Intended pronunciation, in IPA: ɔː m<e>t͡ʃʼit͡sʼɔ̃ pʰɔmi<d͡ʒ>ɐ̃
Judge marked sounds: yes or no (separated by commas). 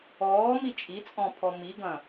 no, no